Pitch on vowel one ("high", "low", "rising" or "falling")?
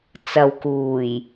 low